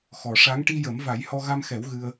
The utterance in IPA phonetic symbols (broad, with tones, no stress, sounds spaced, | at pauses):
x ɔ˨˩ ʂ a˧˥ ŋ ʈ i˧ j ə˨˩˦ m v a˨˩˦ j h ɔ˧ ɣ a˧ m x ɛ˨˩˦ w ɣ ɨ˧ ə̯